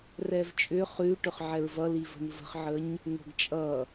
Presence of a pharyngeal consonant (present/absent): present